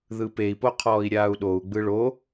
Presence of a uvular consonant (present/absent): present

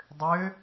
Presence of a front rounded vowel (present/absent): present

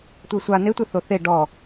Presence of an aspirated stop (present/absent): absent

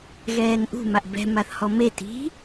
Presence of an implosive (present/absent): absent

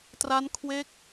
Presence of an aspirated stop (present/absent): present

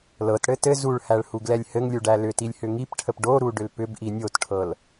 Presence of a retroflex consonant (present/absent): present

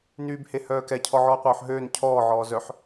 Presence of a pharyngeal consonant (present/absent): present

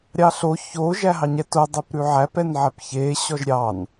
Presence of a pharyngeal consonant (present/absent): present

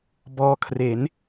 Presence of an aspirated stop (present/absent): present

